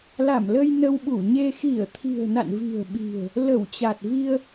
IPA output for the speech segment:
l a˧˩ m l ə˧ j n ə˧ w ɓ u˧˩ ɲ e˧ x i˧˩ ə̯ t̪ʰ i̤˨˩ ə̯ n a̰˧˨ n v i̤˨˩ ə̯ ɓ i̤˨˩ ə̯ | l ə˧˩ w t͡ɕ a˨˩ t̚ v i˧ ə̯

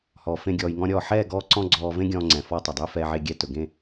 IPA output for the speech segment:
h ɔː˨ f ẽ˧ ɡʲ ɔː˧ j ŋ ɔ̃˦ ɾʲ ɔː˦˨ ħ ɛː˦˨ ɡ ɔː˧ ǀ ɔ̃˧ ɡ͡ǀ ɔː˧ v ẽ˦ ɡʲ ɔ̃ː˧ ŋ͡ǀ ɛ̃˨ f ɔ˧ tˤ ɵ˨ dˤ ɵː˦ f ɛː˧ ʕ e˧ ɡʲ ɛ˧ t ɵ˨ ɡ ẽ˦˨

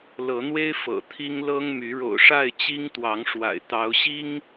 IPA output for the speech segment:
l ɤ˨˦ n̪ w e˦ ɪ̯ f ɤ̰˨˩ t̪ʰ i˦ ŋ l ɤ˦ ŋ m y˨˦ ɻ o̰˨˩ ʊ̯ ʂ a˥˨ ɪ̯ t͡ɕ i˦ ŋ t̪ w ɑ˨˦ ŋ ʂ w a̰˨˩ ɪ̯ t̪ ɑ˨˦ ʊ̯ ɕ i˦ ŋ

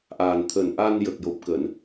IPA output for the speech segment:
ʔ aː˨˩ n t̪ʰ əː˨˩ n ʔ a˧ n j ə˨˩ k̚ j o˨˩ p̚ k əː˨˩˨ n

